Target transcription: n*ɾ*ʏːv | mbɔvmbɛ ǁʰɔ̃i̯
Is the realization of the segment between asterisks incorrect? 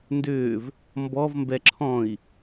yes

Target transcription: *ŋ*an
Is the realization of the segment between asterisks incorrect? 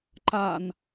yes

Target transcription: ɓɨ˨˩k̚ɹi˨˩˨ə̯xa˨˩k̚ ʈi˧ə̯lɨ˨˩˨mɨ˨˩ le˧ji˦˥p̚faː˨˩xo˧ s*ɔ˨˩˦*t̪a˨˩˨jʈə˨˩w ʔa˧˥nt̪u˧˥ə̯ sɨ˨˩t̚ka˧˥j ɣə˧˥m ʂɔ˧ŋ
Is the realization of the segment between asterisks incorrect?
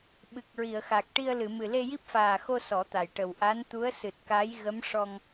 no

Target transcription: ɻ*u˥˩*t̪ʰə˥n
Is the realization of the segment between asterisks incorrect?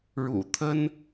yes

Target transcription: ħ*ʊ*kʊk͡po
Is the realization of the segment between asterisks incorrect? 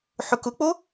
no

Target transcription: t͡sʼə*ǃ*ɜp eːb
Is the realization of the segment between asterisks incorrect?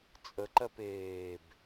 no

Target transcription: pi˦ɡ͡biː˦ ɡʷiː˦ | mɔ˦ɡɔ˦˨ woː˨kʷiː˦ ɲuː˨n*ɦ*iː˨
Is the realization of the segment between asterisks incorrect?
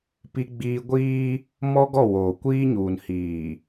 yes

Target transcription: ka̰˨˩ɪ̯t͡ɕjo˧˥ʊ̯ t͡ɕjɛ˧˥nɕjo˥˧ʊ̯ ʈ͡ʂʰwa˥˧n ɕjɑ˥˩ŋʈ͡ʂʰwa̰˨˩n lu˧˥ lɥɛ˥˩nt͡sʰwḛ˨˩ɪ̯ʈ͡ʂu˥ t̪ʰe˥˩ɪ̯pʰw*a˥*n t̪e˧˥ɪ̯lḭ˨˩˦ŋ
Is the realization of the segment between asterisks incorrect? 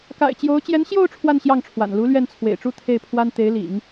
no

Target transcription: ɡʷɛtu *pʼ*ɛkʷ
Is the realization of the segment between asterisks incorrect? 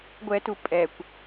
no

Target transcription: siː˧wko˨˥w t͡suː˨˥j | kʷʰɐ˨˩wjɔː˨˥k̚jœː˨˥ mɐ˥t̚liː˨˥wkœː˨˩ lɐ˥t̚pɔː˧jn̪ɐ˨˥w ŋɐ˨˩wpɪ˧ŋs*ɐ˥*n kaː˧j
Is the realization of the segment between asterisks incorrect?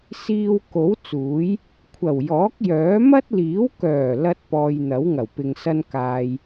no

